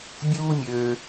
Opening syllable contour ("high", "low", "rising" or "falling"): high